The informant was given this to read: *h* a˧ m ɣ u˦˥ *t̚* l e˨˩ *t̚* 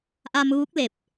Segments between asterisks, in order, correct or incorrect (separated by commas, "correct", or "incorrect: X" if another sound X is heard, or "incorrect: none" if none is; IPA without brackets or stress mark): incorrect: ʔ, incorrect: k̚, incorrect: p̚